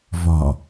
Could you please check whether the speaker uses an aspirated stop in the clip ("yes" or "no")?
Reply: no